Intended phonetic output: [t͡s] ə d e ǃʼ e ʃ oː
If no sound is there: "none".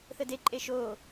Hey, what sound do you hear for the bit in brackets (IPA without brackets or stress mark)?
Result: θ